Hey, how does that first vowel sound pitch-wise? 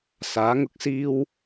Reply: rising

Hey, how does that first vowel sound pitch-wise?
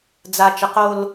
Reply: low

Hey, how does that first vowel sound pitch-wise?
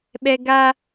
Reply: high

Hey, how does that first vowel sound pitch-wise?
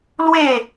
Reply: falling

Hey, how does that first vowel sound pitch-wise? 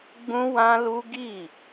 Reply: high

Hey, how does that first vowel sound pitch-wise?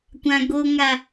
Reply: low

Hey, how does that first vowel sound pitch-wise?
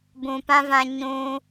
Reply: low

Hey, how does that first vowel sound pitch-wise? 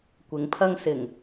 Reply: low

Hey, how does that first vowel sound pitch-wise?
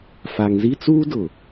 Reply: low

